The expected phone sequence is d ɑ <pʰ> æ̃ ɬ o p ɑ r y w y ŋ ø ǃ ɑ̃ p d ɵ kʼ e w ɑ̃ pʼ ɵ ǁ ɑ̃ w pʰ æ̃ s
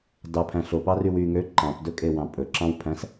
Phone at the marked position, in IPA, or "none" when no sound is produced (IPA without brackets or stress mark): pʰ